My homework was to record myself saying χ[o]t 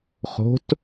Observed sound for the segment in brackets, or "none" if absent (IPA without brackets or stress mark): o̤